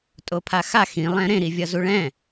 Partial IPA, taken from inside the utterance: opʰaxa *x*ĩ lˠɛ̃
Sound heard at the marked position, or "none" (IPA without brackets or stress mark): x